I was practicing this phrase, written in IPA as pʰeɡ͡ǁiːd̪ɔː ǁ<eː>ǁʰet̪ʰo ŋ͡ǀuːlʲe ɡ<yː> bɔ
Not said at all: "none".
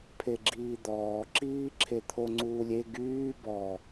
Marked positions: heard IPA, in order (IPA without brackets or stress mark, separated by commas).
iː, yː